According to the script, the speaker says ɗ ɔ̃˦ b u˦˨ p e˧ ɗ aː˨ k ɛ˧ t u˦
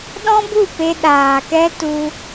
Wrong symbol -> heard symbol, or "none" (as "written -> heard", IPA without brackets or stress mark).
none